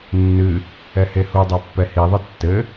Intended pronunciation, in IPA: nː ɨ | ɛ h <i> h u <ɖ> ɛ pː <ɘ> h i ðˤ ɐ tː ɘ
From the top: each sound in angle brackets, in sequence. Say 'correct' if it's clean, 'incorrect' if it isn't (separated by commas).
incorrect, incorrect, incorrect